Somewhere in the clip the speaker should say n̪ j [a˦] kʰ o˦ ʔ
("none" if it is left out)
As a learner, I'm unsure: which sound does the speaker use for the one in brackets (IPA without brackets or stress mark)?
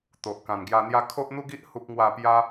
a˦